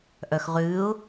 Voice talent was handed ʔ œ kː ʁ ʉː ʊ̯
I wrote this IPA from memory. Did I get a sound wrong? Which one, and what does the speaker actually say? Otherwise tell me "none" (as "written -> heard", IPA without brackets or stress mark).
kː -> x